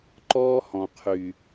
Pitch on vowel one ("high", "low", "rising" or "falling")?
high